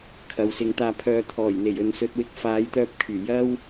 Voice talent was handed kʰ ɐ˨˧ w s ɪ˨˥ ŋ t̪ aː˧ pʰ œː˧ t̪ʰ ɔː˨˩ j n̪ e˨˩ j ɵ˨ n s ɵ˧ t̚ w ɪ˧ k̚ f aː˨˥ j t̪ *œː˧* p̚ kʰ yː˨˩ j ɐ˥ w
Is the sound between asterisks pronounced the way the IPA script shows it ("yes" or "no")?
yes